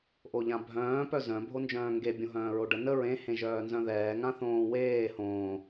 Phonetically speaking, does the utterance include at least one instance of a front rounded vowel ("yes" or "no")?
yes